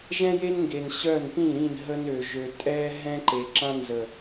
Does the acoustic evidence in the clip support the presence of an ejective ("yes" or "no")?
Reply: yes